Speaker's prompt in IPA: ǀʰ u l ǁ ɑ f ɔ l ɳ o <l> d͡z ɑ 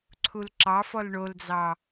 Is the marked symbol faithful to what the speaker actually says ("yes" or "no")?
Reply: yes